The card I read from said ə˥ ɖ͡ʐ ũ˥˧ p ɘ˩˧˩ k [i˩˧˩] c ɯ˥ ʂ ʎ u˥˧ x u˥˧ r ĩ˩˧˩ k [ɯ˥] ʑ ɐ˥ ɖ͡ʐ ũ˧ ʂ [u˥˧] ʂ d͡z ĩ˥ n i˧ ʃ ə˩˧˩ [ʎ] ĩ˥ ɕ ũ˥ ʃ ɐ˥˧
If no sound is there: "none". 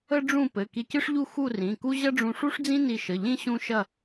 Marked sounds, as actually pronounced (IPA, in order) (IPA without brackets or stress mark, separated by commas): i˧, u˥, u˥, ʎ